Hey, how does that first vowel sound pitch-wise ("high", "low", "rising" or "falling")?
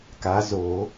rising